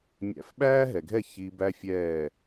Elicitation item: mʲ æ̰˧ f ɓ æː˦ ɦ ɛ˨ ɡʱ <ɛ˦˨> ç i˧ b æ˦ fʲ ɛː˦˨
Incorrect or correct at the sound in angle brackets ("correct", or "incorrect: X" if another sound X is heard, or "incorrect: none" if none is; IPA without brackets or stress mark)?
correct